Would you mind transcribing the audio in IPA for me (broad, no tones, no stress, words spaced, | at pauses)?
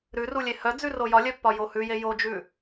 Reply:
ɾʉrulʲe hœd͡zʉ rojɒlʲœpːɒ johʉje jod͡ʒʉ